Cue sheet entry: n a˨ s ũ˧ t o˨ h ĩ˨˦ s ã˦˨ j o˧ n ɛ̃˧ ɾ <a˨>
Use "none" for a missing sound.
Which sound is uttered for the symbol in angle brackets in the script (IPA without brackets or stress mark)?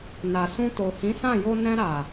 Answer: a˨